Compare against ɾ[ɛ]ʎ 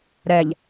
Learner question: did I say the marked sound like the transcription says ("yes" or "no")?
yes